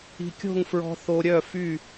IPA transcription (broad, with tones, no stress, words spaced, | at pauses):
i̤˧ kʲo̤˥˨ŋfɹɔ̤˧ θo˧ɾʲœ˥˨fy˥˨